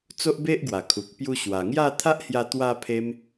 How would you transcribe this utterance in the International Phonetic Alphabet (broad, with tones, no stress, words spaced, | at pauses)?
t͡so˦ʔbe˦ʔɡwa˨˩kʰu˨k̚ pju˧ɕwa˨˩ŋja˥˧ t̪ʰa˦ʔhja˧ t̪wa˧pʰe˧m